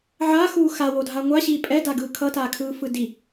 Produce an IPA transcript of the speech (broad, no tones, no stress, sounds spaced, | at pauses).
ʕ a x uː x a w o dʱ a ŋʷ a ɕ iː pʼ ɛ d a ɡ ɯː kʰ ʌ t aː kʰ ɯː f ɯ d i